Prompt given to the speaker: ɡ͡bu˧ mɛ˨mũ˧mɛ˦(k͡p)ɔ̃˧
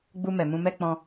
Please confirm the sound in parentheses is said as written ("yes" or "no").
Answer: yes